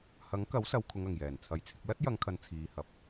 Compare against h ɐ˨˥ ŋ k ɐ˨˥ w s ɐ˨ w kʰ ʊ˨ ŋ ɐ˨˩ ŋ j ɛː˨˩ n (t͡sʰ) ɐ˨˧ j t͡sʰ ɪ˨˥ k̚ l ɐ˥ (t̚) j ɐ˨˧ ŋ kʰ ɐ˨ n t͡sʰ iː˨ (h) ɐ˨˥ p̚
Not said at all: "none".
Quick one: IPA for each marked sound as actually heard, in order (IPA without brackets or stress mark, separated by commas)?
t͡sʰ, t̚, h